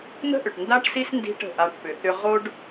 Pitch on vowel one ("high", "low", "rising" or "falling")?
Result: high